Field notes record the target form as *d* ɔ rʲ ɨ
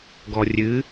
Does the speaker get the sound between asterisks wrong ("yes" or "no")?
yes